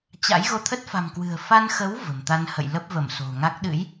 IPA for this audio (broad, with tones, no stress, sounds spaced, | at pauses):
t͡ɕ a̰˧˥ j ɣ o˧ t̪ʰ ə˦˥ t̚ f a̤˨˩ m k w ɨ̤˨˩ ə̯ f a˧ n x ə˨˦ w v ə̤˨˩ m t̪ a˧ n h ə̰˧˨ j l ə˦˥ p̚ v ə˧˩ m s o̤˨˩ ŋ a˦˥ k̚ ɗ ɨ̰˧˥ j